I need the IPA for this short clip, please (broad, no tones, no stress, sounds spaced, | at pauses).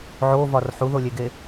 ʕ o v ɒ r ħ u ð o lʲ e ɡ e